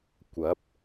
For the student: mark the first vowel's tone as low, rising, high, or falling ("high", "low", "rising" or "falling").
rising